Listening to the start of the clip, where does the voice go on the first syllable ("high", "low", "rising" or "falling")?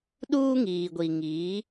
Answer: high